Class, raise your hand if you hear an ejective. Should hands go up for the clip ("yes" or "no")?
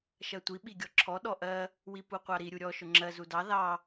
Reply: no